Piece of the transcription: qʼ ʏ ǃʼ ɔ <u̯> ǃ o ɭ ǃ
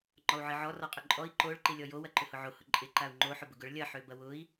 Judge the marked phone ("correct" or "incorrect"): incorrect